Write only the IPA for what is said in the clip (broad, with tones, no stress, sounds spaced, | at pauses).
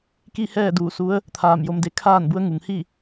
k i˥˨ h ɛː˥˨ d uː˧˩ s u˧˥ ə̯ | t̪ʰ aː˧˩ m j o˧ m d e˧˥ kʰ aː˥˨ n b u˧˥ ə̯ ŋ u˩ ŋ h i˥˨